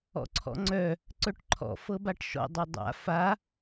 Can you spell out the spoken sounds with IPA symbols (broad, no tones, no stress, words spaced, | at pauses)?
ɔ̰ǀʰɔ̰ŋ͡ǀœ | ǀœʈǃʰɔ̰ fɤbaʈʃɔ̰ dˤœdˤa̰ fa